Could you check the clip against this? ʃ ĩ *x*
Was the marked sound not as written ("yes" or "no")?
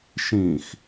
no